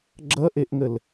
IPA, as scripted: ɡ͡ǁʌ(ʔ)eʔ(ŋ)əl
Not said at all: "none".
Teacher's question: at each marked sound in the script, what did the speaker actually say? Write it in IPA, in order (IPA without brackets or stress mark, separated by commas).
ʔ, ŋ